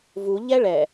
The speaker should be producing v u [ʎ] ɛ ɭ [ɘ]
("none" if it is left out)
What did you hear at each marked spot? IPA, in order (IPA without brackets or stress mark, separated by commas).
ʎ, ɛ